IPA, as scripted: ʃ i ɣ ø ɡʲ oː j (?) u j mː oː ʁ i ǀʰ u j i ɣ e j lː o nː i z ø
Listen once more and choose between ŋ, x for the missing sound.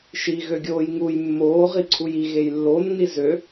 ŋ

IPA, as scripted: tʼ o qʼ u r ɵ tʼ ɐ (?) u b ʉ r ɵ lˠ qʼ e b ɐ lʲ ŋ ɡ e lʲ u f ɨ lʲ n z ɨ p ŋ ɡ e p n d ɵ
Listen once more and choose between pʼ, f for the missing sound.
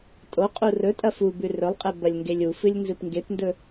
f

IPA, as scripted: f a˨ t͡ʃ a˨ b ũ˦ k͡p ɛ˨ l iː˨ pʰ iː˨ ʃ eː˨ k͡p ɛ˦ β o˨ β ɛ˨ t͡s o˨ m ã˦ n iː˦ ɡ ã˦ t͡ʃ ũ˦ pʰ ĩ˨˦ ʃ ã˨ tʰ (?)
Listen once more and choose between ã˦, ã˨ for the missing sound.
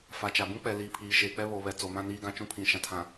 ã˨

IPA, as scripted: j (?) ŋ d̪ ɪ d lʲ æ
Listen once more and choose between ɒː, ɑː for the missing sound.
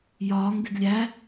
ɒː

